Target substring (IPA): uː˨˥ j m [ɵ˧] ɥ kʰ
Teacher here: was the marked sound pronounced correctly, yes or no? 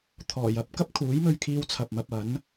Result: yes